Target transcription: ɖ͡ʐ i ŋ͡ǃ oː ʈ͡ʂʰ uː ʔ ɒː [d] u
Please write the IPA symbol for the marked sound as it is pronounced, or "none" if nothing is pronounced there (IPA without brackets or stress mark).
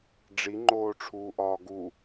ɡ